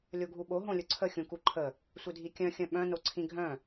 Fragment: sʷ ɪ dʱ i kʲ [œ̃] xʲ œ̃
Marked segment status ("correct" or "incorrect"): correct